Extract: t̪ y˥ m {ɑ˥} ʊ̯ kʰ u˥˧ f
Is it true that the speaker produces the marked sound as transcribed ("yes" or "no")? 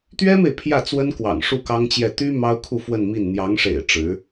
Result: yes